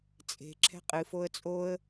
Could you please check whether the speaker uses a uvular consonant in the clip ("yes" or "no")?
yes